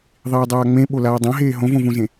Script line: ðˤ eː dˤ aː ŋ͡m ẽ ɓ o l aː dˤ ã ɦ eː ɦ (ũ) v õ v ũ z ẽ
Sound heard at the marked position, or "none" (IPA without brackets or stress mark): õ